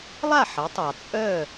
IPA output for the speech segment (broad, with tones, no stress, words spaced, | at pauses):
lˠa˥˩ħə˩˥tˤɑ˩ t͡sʼœ˥˩